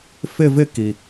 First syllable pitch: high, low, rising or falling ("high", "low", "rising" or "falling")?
falling